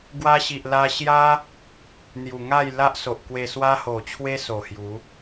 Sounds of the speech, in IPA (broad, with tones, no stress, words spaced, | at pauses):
ɡwa˧ɕi˨ʔ la˧ɕja˦ | n̪ju˨˩ ŋa˥˧jla˦ʔso˨ʔ kwe˧swa˦ ho˨˩t͡ɕʰwe˦ so˨˩hju˨˦